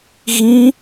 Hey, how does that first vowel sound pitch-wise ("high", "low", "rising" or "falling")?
high